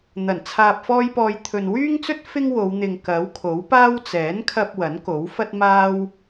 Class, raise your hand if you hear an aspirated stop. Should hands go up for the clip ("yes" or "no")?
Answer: yes